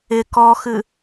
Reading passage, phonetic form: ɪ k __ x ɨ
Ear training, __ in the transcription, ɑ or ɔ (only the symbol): ɔ